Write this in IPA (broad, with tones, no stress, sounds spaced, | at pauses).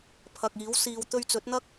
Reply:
pʰ ɐ˨ k̚ iː˨˥ w s iː˨ w t̪ ɵ˧ ɥ t͡s ɵ˨˥ t̚ n̪ ɐ˥ k̚